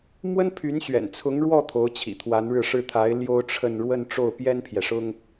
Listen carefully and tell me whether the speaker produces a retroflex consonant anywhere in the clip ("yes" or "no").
yes